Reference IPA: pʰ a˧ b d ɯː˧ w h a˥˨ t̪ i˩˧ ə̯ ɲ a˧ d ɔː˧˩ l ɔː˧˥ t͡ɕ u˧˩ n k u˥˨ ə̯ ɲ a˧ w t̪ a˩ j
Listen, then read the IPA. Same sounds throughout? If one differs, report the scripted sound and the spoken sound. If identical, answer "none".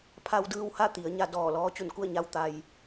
b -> w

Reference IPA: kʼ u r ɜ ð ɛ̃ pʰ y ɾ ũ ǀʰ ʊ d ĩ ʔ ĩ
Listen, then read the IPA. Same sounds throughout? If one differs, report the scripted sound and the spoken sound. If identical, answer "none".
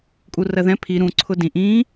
y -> i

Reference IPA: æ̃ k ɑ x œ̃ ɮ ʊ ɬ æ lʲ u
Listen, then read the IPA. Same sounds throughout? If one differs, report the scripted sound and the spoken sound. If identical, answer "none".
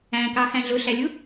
œ̃ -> æ̃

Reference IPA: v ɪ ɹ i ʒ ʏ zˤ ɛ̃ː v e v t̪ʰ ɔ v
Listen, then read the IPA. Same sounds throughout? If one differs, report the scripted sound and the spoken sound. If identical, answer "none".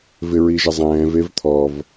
ʏ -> ɪ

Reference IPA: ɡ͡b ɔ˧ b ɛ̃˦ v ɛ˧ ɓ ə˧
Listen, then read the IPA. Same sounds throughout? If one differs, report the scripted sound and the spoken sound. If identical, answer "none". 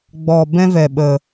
none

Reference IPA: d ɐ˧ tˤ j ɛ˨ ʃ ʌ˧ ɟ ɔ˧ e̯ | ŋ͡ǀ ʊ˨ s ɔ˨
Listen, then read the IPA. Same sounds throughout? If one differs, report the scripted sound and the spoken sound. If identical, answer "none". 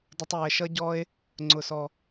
ɐ˧ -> ə˧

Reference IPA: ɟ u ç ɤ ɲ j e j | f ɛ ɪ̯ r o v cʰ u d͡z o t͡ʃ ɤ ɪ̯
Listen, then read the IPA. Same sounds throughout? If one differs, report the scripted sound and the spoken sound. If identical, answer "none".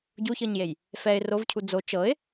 none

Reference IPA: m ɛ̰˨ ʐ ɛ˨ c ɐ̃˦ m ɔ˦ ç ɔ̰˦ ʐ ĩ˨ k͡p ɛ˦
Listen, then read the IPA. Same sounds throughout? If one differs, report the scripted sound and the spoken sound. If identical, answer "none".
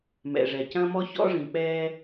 none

